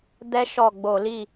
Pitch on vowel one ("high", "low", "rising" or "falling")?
high